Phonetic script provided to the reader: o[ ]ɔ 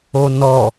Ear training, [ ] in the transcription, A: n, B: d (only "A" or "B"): A